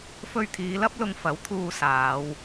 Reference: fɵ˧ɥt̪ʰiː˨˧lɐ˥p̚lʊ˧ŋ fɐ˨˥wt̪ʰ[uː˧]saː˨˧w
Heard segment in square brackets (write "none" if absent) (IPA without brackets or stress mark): uː˧